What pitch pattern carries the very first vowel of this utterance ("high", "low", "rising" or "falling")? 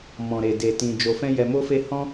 low